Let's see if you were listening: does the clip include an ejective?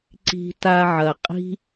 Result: yes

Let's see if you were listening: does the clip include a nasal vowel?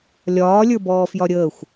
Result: no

